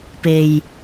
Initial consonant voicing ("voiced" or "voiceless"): voiceless